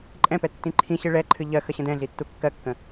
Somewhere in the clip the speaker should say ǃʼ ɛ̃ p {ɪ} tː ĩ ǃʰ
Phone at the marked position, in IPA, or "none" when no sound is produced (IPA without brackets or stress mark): ɛ